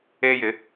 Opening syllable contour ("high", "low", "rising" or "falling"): high